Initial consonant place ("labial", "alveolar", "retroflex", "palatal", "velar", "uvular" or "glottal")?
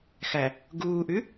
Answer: velar